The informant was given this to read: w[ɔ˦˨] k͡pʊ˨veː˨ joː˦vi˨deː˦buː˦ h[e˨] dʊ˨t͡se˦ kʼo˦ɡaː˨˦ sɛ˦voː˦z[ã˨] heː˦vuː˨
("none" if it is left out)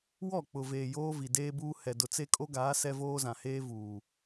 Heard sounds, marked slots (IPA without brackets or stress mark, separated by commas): ɔ˦˨, ɛ˨, ã˨